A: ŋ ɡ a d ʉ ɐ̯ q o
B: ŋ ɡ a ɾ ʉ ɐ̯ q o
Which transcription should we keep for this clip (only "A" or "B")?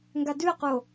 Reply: A